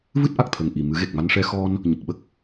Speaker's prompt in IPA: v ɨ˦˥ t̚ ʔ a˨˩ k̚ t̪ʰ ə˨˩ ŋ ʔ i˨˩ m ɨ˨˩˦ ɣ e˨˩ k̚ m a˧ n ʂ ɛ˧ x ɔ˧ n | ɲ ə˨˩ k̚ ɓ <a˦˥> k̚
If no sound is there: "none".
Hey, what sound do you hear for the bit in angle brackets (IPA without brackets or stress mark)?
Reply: ə˦˥